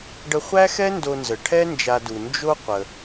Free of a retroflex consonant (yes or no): no